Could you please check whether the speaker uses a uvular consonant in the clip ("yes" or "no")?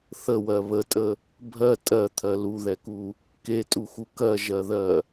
no